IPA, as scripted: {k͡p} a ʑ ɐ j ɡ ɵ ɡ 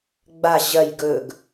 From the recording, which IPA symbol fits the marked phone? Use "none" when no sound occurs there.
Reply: ɡ͡b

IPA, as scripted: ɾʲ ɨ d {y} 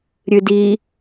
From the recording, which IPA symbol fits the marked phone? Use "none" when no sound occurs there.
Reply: i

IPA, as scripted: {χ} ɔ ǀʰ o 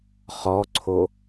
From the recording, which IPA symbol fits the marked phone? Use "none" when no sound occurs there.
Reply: χ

